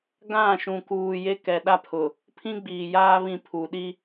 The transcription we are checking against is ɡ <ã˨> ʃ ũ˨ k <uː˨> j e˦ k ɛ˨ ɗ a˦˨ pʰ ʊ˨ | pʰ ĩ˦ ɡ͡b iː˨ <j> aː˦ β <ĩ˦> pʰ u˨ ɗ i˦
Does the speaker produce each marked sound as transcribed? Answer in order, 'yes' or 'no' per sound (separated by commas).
no, yes, yes, yes